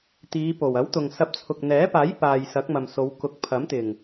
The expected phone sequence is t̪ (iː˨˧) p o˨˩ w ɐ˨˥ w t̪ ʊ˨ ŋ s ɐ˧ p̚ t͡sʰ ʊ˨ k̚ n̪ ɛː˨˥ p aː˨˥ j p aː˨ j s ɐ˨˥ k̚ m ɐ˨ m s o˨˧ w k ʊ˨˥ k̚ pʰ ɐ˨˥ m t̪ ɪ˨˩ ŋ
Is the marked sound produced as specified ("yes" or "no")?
yes